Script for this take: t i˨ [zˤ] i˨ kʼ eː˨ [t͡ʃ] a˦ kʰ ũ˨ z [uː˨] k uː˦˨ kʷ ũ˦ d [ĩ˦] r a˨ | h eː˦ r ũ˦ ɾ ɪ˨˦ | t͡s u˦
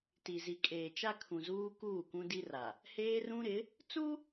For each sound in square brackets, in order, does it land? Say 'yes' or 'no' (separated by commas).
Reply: no, yes, no, no